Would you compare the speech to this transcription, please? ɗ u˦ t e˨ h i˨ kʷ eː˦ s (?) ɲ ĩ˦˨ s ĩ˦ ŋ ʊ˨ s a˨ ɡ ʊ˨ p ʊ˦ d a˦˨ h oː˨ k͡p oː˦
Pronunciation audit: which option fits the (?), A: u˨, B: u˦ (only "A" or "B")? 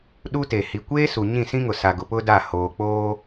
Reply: A